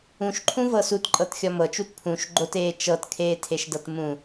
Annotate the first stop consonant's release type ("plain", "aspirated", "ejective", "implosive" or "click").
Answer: click